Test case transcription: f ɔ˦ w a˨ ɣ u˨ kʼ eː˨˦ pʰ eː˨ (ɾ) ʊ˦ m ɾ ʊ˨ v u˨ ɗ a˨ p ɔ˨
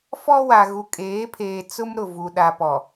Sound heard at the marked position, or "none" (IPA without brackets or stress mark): t͡s